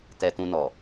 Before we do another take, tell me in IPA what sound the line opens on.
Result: t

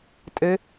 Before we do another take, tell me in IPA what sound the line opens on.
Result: tʼ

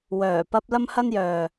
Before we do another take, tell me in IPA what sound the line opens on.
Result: w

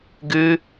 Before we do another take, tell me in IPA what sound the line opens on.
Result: ɡ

